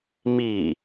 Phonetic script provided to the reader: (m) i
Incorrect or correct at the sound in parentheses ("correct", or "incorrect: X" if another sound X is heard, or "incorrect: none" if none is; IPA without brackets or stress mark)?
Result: correct